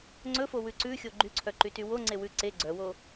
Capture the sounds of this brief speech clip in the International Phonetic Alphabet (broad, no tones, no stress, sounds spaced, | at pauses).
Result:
ŋ͡ǀ ɵ f o w ʉ ǀ ʉ xʲ o ɡ͡ǃ y ǀʰ œ ǃ y t y w o ŋ͡ǀ e w ʉ ǀ e ɡ͡ǀ œ w o